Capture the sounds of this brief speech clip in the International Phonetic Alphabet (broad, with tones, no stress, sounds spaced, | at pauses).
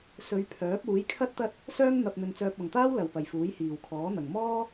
s ɵ˨˧ ɥ pʰ œː˨˥ p̚ uː˨˥ j kʰ ɐ˥ t̚ t̪ ɐ˥ t̚ | s œː˥ ŋ n̪ ɐ˧ p̚ n̪ ɵ˧ n t͡s œː˧ p̚ ɐ˨ ŋ t̪ aː˥ w l ɐ˨ w p ɐ˨ j f uː˨˥ j h iː˨ w kʰ ɔː˨˥ n̪ ɐ˨ ŋ m ɔː˥